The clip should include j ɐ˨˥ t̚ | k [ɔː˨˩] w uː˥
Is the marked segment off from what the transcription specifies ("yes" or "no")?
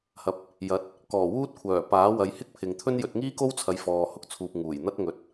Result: no